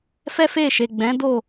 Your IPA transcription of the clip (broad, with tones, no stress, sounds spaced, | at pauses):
f ɛ˦ f e˦˨ ʃ e˨ ɡ͡b ɛ̃˨˦ d o˦˨